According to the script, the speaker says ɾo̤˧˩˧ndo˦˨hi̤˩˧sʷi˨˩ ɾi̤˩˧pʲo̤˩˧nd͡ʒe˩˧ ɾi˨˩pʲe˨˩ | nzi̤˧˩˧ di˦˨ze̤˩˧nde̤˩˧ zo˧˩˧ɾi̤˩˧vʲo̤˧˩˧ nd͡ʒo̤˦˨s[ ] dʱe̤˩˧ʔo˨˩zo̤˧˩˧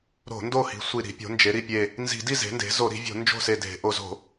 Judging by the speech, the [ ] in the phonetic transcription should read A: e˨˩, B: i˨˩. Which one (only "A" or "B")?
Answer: A